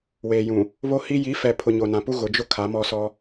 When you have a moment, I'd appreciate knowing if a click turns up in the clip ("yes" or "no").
no